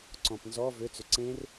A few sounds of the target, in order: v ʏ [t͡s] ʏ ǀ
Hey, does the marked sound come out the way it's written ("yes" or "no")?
yes